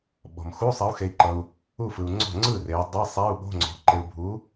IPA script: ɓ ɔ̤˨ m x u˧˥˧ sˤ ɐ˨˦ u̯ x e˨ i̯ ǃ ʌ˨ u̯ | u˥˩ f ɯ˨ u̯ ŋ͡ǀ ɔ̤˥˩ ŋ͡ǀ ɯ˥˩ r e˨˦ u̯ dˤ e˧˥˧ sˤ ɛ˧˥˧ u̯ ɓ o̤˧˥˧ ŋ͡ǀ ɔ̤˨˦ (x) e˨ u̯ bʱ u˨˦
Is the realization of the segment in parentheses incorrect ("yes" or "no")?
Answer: yes